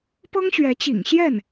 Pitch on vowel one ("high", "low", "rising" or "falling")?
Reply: high